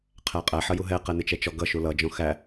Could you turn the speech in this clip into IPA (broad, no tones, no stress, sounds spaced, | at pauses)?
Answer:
qʰ æ qʼ æ ħ ʌ j u ɦ ɛ q ɛ n ɪ t͡ʃ ɛ t͡ʃ ɔ ɡ ʌ ʃ u l ʌ d͡ʒ ɔ̃ x æ